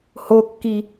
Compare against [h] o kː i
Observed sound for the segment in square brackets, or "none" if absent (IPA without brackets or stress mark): h